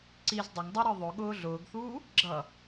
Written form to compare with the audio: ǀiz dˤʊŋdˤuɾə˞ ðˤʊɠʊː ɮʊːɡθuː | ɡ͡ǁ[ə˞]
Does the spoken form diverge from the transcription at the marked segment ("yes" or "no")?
yes